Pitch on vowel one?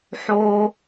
high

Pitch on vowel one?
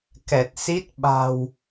low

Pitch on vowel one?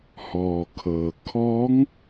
low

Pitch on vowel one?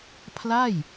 falling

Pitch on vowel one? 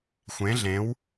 rising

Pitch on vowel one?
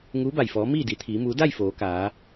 rising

